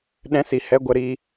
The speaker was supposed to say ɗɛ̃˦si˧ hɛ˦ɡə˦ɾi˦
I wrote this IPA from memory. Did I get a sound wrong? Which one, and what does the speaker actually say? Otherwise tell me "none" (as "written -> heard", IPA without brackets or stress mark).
ɡ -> ɡʷ